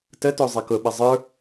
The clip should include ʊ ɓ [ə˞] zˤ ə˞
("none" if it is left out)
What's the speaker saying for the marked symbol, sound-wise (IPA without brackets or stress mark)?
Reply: ɐ